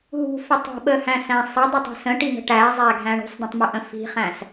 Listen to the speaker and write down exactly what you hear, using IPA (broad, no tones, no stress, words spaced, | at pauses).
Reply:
ɦṳfɪ tˤə̤ɓəhæ̃sæ̃ sˤədˤɪtˤi̤ sə̃ʈiŋə̤ ʈæzˤæɡʱæ̃ ɳṳsˤdə̃tˤmʊʔə̃ fi̤χæ̃s